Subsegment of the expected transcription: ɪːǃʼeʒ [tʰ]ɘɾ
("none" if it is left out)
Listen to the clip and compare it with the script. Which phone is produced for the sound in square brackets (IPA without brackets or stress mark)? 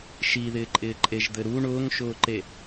d̪